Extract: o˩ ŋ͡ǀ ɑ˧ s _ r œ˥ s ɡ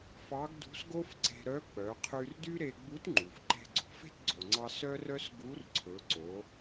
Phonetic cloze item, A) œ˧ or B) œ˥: B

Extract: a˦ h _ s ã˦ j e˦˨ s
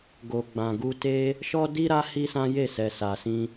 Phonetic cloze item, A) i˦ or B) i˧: A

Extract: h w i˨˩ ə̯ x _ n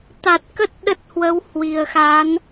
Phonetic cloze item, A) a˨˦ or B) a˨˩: A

